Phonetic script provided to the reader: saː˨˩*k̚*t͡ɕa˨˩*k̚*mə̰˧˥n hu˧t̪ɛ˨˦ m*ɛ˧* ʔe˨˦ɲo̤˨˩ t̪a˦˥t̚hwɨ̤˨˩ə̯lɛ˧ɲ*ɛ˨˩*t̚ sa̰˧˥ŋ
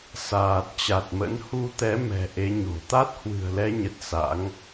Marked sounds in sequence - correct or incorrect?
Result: incorrect: t̚, incorrect: t̚, incorrect: ɛ̤˨˩, incorrect: ə˨˩

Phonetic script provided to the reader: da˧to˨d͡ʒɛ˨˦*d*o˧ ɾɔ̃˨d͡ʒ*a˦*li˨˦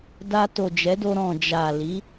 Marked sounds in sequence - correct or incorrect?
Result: correct, incorrect: a˨

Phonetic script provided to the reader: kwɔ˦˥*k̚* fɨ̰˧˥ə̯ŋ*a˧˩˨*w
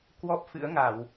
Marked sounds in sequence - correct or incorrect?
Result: incorrect: p̚, correct

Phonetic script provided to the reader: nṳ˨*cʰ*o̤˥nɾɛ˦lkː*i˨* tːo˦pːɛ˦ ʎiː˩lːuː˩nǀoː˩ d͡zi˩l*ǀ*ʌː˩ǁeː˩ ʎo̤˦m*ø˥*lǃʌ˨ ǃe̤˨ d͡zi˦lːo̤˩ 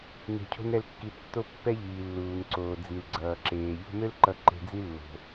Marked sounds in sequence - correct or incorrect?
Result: correct, correct, incorrect: ɡ͡ǀ, correct

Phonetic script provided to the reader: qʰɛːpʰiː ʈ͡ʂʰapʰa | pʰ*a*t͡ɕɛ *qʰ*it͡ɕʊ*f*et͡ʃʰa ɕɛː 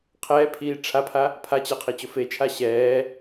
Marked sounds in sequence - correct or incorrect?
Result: correct, correct, correct

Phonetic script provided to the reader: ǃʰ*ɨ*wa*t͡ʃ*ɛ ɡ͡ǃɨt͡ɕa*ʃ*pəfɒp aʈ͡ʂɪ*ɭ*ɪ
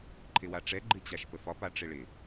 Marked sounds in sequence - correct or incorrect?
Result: incorrect: ɪ, incorrect: ʈ͡ʂ, correct, correct

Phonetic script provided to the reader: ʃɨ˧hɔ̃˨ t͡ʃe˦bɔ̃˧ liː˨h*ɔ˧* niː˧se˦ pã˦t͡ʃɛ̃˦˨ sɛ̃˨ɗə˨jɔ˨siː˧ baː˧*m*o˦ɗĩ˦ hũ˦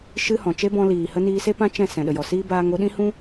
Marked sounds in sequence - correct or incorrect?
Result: incorrect: ə˧, incorrect: ŋ

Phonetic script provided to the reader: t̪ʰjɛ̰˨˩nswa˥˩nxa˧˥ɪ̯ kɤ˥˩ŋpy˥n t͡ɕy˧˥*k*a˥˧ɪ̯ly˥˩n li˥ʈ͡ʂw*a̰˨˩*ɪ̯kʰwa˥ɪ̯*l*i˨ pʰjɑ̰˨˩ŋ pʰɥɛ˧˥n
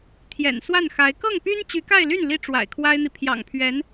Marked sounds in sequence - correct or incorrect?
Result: correct, correct, incorrect: n̪

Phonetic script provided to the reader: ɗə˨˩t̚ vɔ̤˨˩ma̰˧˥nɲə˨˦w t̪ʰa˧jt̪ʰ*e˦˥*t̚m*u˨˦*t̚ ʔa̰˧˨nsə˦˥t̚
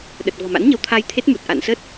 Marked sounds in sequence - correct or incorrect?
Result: correct, incorrect: u˨˩

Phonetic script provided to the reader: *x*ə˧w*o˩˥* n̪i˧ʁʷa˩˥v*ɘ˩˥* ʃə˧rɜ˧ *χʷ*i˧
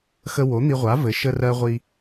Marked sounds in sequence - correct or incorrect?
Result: correct, correct, correct, incorrect: ʁʷ

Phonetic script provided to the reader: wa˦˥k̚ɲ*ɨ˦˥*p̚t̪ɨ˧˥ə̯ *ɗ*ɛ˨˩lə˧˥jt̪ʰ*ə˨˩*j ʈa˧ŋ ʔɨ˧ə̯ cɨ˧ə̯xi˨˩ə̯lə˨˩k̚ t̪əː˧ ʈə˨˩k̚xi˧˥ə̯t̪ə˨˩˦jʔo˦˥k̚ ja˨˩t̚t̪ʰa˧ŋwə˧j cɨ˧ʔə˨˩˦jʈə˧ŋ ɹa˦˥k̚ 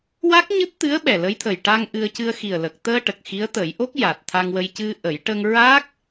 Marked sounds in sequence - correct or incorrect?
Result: correct, incorrect: ɓ, correct

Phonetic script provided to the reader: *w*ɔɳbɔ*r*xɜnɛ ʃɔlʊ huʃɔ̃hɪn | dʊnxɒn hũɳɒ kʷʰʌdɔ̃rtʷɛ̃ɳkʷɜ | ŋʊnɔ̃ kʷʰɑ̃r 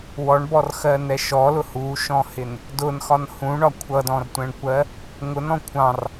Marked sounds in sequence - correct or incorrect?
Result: correct, correct

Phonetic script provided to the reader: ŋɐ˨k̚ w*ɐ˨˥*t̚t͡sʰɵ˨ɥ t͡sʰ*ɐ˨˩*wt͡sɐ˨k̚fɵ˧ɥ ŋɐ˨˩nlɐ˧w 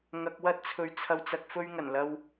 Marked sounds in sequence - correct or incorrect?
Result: incorrect: ɐ˥, incorrect: ɐ˨

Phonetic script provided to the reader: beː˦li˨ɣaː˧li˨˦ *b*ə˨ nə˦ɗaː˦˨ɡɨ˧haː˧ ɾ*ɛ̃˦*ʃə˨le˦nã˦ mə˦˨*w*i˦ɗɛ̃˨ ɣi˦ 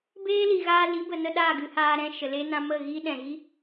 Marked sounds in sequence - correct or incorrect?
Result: correct, correct, incorrect: ɣ

